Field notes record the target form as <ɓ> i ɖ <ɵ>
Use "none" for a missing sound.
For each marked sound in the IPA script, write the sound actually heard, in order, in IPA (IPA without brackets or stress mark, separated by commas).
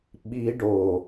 ɓ, o